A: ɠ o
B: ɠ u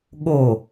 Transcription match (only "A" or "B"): A